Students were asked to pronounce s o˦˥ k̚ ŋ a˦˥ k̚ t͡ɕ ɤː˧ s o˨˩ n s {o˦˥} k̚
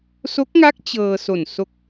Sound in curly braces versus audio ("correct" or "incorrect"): correct